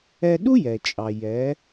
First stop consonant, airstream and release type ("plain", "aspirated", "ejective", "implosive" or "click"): implosive